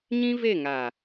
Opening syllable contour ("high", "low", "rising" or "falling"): high